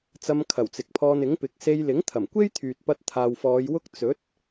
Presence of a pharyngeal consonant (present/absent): absent